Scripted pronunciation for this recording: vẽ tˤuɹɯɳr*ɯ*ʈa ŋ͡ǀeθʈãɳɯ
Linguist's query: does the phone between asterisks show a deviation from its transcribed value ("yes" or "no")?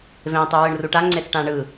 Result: yes